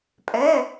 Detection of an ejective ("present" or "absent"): present